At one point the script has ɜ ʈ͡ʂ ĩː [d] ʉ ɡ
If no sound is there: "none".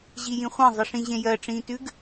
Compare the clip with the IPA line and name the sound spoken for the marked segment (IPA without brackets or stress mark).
t